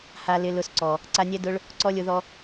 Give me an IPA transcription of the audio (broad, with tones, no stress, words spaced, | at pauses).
ha˧ lɪ˧lʊ˧sǀɔ˨ | ǀa˧nʲɛ˦dʊ˦ɭ | ǀɔ˦lʲʊ˧ðɔ˦